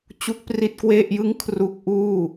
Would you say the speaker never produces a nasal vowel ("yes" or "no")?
yes